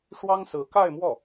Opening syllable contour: high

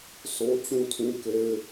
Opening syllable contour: high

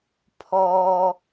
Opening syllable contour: high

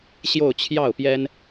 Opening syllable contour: falling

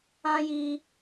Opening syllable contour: high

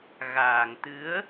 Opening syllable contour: low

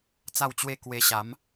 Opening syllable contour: falling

